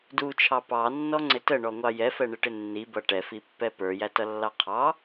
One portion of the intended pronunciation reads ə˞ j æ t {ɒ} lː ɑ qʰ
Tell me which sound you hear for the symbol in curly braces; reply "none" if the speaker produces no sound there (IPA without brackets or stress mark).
ʌ